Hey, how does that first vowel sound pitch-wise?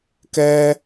high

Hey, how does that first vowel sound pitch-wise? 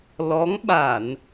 rising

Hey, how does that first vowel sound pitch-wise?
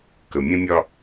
low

